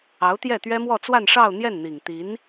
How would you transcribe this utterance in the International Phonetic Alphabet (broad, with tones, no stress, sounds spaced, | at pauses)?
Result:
ɑ˧˥ ʊ̯ t̪ j ɛ˥˩ t̪ ɥ ɛ˥ m w ɔ˥˧ t͡s w a˥˧ n ʂ ɑ˥˧ ʊ̯ n̪ j ɛ˥˩ n n̪ i˨˩ ŋ t̪ i˧˥ n